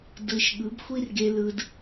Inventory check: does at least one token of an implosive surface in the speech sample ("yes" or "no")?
yes